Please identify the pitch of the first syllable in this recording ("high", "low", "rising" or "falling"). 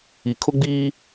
low